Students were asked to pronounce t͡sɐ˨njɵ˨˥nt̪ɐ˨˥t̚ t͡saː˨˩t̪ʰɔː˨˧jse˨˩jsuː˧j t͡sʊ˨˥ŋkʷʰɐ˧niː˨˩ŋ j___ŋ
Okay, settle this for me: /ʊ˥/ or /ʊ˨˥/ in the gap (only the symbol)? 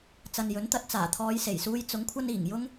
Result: ʊ˥